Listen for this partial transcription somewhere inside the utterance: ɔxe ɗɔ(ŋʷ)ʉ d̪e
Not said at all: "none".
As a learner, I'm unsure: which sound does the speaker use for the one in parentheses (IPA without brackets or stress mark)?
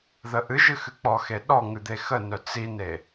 ŋ